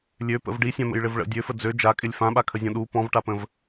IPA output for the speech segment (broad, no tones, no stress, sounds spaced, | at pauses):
lʲ ø p ə̰ v ɖ i sʲ ã m ə̰ j ɭ ɪ v ɭ ə̰ dʲ ø f ə d͡z ø d͡ʒ a kʼ ɪ lʲ f ã ɓ a kʰ ə zʲ ɔ̃ ɗ u p ɔ̃ v ʈ a p ə̃ v